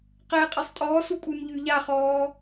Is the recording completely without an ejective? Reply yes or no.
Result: no